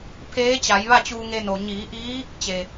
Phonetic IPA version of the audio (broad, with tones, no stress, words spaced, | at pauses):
pʰeː˧˥ t͡ɕa˩˧jʋa˥˨t͡ɕuː˧ ŋe˧no˩ ɲiː˩˧ʔiː˧˥ | t͡ɕe˩